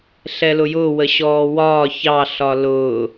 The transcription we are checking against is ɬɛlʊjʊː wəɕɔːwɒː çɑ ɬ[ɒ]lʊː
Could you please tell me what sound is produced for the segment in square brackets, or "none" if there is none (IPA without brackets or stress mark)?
ɒ